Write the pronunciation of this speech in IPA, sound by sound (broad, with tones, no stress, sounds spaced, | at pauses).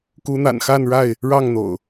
k u˨˦ n̪ a̰˨˩ n x a˥˨ n ɻ a˥˨ ɪ̯ | ɻ ɑ˥˨ ŋ n̪ o̰˨˩ ʊ̯